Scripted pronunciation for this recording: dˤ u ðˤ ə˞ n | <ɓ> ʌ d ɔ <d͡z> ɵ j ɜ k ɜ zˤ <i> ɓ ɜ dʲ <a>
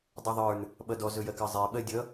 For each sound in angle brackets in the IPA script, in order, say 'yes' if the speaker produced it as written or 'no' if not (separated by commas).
yes, no, no, no